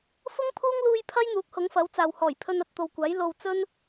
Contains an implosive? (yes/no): no